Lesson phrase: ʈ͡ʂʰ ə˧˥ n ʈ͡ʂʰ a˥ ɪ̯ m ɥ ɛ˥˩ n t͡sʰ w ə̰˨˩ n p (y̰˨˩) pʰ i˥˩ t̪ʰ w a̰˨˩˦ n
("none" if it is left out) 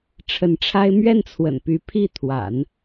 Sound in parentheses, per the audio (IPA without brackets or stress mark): y˧˥